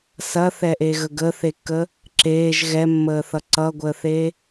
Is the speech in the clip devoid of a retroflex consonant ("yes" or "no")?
yes